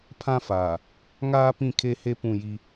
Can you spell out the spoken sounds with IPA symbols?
pʰã˦faː˨ | ŋaː˦ pĩ˦˨kʰe˦he˦ pũ˦˨ji˦

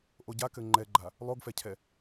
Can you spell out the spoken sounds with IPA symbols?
ʔoɟakɘ ŋ͡ǃɛɡ͡ǃa | lˠoɡfɛcʰɛ

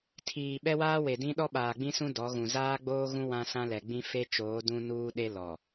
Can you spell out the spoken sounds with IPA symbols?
tʰiː˨ ɓɛ˦waː˦we˨dĩ˦ ɗɔ˦ɓaː˨ɡ͡bĩ˦sũ˦ dɔ˨˦ɣũ˨ zaː˦ɡ͡boː˦ɣũ˦ wã˦sã˦lɛ˨ɡ͡bĩ˦ fe˦t͡ʃoː˨˦ dũ˦nuː˦ɗe˦ lɔ˨

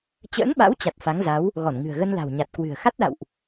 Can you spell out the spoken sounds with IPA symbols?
t͡ɕə̰ː˧˥nɓa̰˧˥w t͡ɕa˨˩t̚ fa˨˦ŋza˨˦w | ɣɔ˧˩nŋɨ̤˨˩ə̯ɣə˧nla̤˨˩w ɲa˨˩t̚kwɨ̤˨˩ə̯ xa˦˥t̚ɗa̰˧˨wʔ

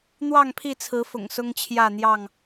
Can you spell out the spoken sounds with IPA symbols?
n̪wɑ˥˨ŋpʰi˥˨t͡sʰɹ̩˨˦ fʊ̰˨˩ŋsʊ˦ŋt͡ɕʰjä˥˨n̪jɑ˥˨ŋ

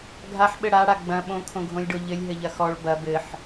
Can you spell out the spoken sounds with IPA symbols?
ɡʱaħɓɘ ɽaɽa ɡ͡bɐ̃ ɓõkʰõɡʱõlʲɖo ʎɘlʲɦɘʎɐ xɔɭ bɐ bɘħ

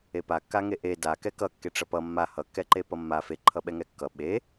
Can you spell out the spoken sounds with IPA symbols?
epakːaŋe ʔe dakɛ kʌkːeʈ͡ʂʌ pʌ mːa hʌkːɛǃepʌ mːa feǃʰʌɓɛŋɛ kːʌ ɓe

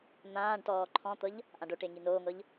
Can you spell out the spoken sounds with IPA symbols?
n̪ãːɖtɔː ǃʰɔ̃t̪ɤʎ | ʔãɖoʈe ŋinoːŋɤʎ

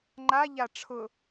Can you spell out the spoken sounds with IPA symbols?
ŋ͡ǃaʎa ʈ͡ʂʰʊ

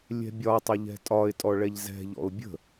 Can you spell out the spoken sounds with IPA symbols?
lʲɛ̤bʲɒtˤə ʎɛ̤tʼɒɪ̯tʼɔ ɭɛʎzɛ̤ʎɔ̰ʊ̯ bʲə̤

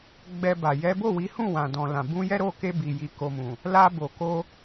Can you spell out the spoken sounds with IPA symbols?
ɡ͡bɛ˧ba˨ jɛ˨˦bo˦˨wi˨˦hũ˦˨ wã˨dɔ̃˨lã˨ bũ˧jɛ˦ɾo˦˨ke˧ bi˨ji˨ ko˨ mũ˨ | la˧bo˨ ko˧

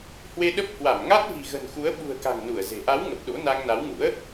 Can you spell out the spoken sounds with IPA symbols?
hwe˧ɗə˦˥p̚ hwa˧˩mŋa˦˥t̚ vi̤˨˩ɣə̤˨˩nxu˨˦ə̯ ɓṳ˨˩ə̯ka̤˨˩ŋ nu˧˩ə̯ze̤˨˩ ʔa˨˦w ŋə˨˩p̚ɗo̰˧˥ na˧ŋna˨˦wŋṵ˧˥ə̯

